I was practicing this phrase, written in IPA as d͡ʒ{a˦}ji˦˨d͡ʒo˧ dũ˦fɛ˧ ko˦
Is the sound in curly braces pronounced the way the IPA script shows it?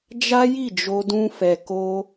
yes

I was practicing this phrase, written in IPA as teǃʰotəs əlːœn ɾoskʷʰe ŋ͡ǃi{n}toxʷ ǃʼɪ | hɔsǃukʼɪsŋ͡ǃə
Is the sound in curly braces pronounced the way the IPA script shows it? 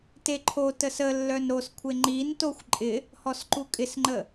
yes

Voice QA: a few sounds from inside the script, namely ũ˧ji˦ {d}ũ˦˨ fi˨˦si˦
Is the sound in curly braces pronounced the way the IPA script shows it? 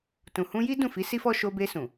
yes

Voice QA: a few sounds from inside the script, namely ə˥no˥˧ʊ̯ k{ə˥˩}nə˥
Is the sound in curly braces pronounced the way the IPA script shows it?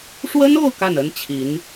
no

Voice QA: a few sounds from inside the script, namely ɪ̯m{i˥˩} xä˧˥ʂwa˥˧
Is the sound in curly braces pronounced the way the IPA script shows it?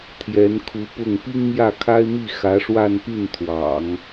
yes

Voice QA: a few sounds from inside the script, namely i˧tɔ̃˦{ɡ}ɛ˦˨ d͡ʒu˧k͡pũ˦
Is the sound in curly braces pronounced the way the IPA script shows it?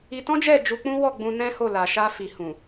no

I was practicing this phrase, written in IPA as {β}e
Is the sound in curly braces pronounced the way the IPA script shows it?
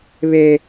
yes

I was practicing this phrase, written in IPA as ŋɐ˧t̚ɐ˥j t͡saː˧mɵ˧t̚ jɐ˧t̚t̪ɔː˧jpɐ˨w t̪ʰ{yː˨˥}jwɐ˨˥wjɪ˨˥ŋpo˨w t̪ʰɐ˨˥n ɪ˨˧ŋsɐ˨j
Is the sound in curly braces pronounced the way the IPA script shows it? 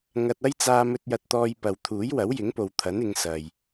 no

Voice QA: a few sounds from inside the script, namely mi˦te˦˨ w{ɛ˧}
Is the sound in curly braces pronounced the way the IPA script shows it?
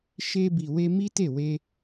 no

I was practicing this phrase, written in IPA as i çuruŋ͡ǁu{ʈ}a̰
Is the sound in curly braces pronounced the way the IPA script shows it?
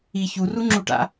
yes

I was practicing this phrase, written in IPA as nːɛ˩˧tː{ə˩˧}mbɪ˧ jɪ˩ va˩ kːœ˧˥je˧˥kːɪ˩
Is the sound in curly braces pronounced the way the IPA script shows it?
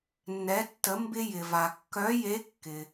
yes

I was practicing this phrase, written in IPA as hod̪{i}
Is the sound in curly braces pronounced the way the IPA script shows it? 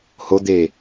no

